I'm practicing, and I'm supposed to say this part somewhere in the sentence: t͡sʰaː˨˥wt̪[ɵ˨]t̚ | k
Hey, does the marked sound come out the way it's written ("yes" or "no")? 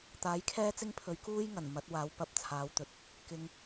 yes